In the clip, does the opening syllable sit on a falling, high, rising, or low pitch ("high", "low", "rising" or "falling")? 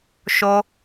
high